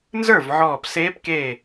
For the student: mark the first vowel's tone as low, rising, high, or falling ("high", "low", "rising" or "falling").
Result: falling